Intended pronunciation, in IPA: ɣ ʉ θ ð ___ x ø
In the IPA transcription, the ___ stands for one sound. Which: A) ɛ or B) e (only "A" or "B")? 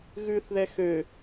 A